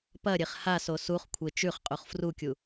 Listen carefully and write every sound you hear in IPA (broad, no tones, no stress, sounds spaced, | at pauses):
p ɐ ɾʲ e χ h a s o s u χ kʷʰ e t͡ʃ ʉ χ qʼ u χ f r u kʲ u